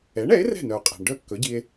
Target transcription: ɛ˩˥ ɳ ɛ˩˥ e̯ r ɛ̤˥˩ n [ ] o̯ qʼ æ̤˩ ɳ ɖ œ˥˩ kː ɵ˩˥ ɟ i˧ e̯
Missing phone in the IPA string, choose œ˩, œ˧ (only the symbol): œ˩